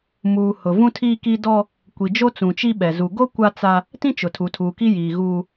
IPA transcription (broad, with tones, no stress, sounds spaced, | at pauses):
m uː˨ h ʊ˨ v ũ˦ tʰ iː˦ k i˦ d ɔ˦ | kʷ i˨ d͡ʒ o˦ t͡s ũ˨ t͡ʃ i˦ ɓ ɛ˨ z u˨ ɡ o˦ kʷ a˦ t͡s a˦ | t ĩ˦ t͡ʃ ʊ˨ tʰ u˨ tʰ uː˨ k i˦ j iː˨ ɣ uː˦